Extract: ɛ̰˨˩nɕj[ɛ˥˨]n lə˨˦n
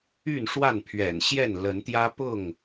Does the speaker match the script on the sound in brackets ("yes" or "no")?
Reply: yes